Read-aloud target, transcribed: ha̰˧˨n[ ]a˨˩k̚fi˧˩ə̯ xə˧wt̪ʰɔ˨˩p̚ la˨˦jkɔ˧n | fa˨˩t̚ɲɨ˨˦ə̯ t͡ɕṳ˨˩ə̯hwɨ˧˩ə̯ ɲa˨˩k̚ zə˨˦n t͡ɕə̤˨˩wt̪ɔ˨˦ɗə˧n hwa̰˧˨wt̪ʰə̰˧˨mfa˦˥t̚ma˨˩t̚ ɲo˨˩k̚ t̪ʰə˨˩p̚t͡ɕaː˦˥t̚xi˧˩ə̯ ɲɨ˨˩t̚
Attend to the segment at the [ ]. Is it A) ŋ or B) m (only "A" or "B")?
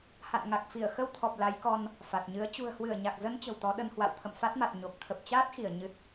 A